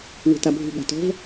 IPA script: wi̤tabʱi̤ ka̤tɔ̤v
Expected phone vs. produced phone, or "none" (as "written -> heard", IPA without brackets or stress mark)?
k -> ɠ